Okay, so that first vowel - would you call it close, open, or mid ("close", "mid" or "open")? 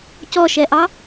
mid